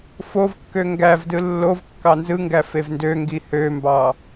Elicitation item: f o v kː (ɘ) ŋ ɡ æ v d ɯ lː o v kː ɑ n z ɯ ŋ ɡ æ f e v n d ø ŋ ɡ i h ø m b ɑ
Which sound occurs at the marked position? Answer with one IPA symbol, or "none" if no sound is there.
ø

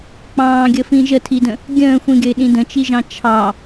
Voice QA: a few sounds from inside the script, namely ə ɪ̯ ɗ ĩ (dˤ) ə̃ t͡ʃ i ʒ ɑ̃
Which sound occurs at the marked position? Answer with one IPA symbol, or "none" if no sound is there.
d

